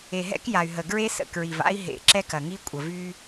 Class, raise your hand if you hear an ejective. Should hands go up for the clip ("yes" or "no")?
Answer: yes